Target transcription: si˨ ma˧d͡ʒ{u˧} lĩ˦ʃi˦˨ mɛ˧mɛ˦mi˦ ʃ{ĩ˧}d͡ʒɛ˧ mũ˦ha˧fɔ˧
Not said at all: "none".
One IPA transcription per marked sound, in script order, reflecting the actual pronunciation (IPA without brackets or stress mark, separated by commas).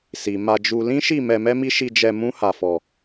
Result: u˧, i˧